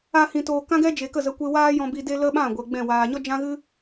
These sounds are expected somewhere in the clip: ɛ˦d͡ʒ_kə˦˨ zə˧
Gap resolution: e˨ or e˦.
e˨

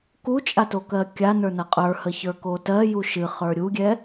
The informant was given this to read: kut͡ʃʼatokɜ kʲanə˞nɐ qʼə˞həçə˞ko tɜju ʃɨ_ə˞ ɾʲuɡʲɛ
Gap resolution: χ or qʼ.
χ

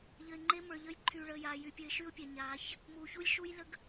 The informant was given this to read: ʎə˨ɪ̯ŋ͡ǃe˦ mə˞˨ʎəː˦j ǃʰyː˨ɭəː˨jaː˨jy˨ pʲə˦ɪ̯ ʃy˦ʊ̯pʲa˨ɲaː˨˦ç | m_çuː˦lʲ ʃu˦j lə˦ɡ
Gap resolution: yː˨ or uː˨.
uː˨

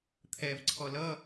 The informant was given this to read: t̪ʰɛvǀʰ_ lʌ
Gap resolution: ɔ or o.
ɔ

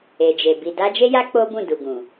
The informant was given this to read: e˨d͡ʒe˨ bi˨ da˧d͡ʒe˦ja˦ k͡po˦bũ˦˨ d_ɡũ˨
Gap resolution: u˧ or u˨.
u˨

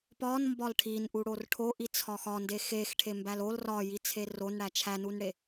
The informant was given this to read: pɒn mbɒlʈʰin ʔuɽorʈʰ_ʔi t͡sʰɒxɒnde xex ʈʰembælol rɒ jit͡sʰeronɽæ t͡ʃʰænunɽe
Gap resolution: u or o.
o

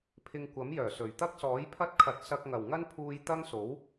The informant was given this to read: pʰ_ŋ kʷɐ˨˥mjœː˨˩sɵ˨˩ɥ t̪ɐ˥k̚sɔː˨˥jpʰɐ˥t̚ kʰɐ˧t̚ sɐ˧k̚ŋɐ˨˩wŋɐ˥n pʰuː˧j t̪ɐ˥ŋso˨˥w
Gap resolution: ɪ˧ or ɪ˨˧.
ɪ˧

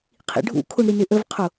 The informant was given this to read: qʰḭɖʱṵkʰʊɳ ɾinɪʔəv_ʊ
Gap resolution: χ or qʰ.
qʰ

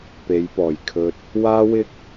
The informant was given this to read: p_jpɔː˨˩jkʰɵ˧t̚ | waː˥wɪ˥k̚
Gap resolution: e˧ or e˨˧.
e˨˧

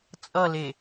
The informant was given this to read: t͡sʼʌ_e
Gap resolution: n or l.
l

